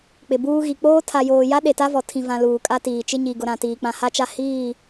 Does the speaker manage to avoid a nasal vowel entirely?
no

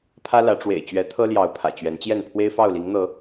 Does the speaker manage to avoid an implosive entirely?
yes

